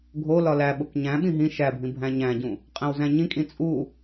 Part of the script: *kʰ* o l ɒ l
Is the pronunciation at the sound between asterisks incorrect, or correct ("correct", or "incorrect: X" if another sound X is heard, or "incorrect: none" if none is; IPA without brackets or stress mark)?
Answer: incorrect: ɡʱ